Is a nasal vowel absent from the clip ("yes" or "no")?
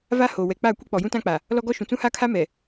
no